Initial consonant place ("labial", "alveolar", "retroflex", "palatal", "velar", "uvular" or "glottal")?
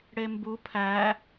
retroflex